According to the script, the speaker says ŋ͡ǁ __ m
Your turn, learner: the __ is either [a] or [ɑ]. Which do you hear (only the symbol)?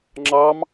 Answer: ɑ